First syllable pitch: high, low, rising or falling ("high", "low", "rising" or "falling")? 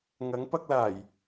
rising